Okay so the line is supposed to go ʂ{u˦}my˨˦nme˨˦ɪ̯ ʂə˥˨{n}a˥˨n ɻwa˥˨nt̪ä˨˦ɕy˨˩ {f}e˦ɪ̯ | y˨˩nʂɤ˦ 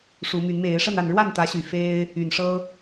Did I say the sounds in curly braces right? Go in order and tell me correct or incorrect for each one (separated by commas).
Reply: incorrect, correct, correct